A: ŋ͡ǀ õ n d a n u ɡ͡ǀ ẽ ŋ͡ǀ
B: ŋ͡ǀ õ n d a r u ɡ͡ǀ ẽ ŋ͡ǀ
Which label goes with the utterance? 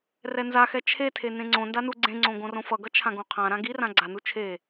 A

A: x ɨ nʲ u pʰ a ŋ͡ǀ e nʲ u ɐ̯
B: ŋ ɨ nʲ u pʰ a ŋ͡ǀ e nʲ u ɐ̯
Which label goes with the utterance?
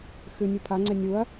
A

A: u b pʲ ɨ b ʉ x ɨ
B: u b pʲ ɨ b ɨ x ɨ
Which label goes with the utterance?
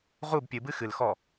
B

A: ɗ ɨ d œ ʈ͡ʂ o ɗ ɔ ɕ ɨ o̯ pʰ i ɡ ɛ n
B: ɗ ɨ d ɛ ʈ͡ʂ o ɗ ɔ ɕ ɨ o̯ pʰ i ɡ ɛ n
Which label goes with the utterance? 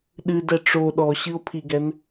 B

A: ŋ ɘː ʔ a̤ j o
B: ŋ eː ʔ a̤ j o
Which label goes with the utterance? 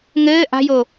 A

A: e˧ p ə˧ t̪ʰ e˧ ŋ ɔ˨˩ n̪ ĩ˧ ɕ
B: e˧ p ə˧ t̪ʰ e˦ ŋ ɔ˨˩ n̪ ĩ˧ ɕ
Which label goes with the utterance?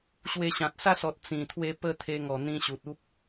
A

